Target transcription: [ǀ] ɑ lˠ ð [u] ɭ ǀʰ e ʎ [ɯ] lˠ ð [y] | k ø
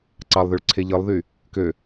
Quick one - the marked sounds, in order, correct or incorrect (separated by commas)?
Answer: correct, incorrect, correct, correct